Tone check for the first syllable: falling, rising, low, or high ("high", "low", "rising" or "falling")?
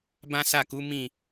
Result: high